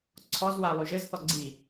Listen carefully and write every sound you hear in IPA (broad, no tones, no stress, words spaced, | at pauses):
ǀʰɔzwa lˠyʒɘzθɔ ɡ͡ǀi